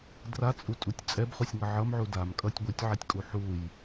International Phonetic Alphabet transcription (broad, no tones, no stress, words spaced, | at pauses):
drat͡sʼutʼutʲ t͡sʼɛbχusʲŋʌ ʕʌmʕu damkʼʌtʲ ɡʷitʲʕɛtʲkʼu ħuj